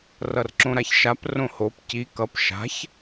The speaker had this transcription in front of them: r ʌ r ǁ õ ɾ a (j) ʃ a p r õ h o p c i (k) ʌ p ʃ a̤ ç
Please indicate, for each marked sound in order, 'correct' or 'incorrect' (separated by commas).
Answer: incorrect, correct